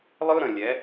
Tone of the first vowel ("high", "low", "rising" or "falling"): high